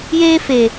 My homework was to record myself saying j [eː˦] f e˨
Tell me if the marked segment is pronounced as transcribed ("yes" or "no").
yes